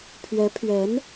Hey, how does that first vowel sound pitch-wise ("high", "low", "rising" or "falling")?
rising